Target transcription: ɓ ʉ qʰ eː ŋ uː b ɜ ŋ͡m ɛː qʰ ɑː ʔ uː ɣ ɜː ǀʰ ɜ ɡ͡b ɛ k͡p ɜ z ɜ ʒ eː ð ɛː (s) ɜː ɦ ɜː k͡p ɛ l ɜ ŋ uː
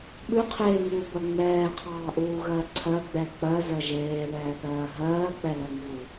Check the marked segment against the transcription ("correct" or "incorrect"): incorrect